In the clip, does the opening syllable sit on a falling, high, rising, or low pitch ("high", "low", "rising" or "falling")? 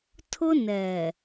high